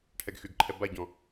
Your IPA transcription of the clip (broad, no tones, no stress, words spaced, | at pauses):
ʈʰɛɡxyɡǃʰɛ baɟɔ̃